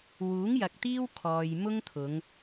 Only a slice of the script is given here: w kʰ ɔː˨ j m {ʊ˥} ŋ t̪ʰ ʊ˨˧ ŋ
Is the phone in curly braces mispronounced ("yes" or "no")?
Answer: no